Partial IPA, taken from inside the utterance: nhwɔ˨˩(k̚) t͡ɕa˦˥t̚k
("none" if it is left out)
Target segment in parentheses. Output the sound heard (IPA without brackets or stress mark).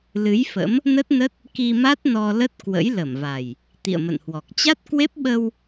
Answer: k̚